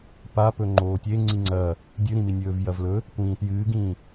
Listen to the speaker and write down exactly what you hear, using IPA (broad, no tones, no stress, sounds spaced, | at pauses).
p a p ɵ ŋ͡ǃ oː tʲ e ŋ͡ǀ i ŋ͡ǀ ɐː | dʲ ɨ ɾ ĩ m i nʲ ɵː v j ɐ v l ɵ | kʷ ĩː t j ɨː ɡ ĩː